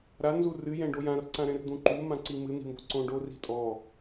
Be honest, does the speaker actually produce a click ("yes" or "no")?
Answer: yes